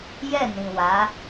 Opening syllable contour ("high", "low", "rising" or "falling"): falling